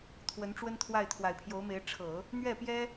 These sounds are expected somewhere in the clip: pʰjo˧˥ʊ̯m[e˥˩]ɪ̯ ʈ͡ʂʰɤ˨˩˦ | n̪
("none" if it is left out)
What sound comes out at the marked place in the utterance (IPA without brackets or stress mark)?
e˧˥